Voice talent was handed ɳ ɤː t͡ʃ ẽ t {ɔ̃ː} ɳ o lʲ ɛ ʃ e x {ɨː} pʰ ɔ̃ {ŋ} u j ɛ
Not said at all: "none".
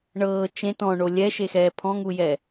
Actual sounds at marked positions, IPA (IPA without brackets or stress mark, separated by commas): ɔ̃, ɛː, ŋ